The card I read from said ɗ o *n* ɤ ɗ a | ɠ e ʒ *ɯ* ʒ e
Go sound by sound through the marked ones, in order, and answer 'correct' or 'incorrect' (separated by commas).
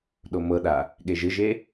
incorrect, correct